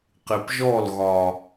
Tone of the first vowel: low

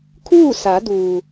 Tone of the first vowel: falling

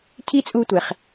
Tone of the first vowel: high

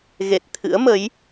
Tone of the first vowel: low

